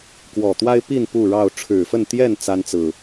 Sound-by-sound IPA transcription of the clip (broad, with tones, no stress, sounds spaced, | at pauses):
k w ɔ˨˩ t̪ w a˦ ɪ̯ p i˥˨ n p u˥˨ ɻ ɑ˥˨ ʊ̯ ʈ͡ʂʰ ɻ̩˨˩ f ə˥˨ n t̪ j ɛ˥˨ n t͡s a˦ n t͡s ɹ̩˨˩